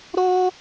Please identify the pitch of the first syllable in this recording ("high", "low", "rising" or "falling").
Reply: high